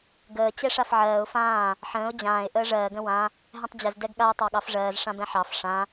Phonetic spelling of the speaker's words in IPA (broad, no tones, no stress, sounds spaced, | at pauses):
ɡ əː t͡ɕ ɛ ʂ a f ʕ ɜː ʊ̯ f ãː | ħ ə̃ː ʊ̯ d͡ʑ ãː ɪ̯ ʔ əː ʐ ɜː ɡ ə̃ w ã | ɦ ɛ̃ tˤ d͡ʑ ə z d ɛ ɡ ɠ a ʊ̯ tˤ ɑ ɠ ɑ f ʐ ɜː z ʂ ã b ɛ̃ ħ ɑ f ʂ ã